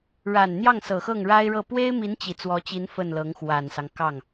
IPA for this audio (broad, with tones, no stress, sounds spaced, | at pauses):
ɻ a˨˩ n n̪ j ɑ˥˩ ŋ s ɤ˨˩ x ɤ˥˩ ŋ ɻ a˥ ɪ̯ ɻ ɤ˥˩ p w e˥ ɪ̯ m i˧˥ n t͡ɕ i˨˩ t͡s w ɔ˧˥ t͡ɕ i˧˥ n f ə˥˩ n l ɤ˧˥ ŋ x w a˨˩ n s ɑ˦ ŋ k ɑ˥˩ ŋ